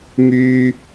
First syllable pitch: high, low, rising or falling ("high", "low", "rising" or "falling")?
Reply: high